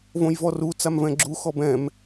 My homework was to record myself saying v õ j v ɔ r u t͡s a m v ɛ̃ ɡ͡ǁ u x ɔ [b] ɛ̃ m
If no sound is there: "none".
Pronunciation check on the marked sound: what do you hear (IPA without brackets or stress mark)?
b